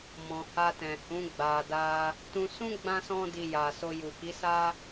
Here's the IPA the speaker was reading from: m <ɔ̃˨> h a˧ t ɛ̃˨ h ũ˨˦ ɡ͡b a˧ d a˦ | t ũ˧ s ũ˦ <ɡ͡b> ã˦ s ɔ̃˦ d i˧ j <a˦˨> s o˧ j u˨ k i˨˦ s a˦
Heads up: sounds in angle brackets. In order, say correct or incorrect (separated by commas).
correct, correct, incorrect